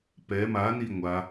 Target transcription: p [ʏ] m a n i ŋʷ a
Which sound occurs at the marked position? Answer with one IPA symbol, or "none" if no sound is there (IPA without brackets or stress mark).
ɛ